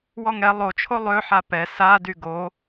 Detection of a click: absent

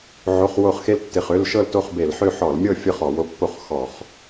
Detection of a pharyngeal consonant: present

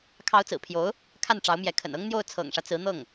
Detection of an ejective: absent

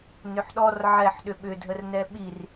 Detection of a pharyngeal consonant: present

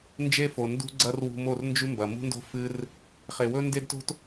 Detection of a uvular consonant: present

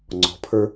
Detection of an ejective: absent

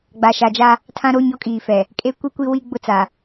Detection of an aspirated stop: present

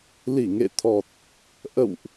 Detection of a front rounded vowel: absent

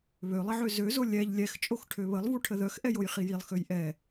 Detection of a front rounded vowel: present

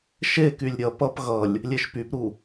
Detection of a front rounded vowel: present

